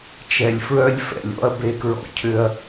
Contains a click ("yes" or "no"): no